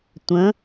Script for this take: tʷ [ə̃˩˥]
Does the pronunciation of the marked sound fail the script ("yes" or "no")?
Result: no